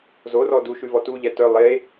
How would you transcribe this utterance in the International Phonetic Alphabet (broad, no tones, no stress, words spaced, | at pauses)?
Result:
zorɔ duʃʉvɔ tu ʎɛtœ lˠe